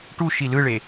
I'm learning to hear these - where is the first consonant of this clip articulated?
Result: retroflex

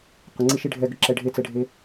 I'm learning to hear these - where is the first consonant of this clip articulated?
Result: uvula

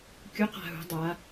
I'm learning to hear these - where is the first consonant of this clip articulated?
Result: velum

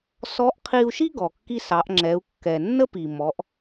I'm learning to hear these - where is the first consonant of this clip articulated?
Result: tongue tip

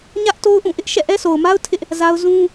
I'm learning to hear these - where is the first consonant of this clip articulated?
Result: palate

